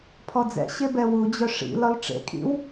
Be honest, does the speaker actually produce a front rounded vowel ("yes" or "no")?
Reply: yes